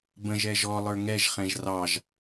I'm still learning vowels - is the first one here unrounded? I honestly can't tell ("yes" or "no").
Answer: yes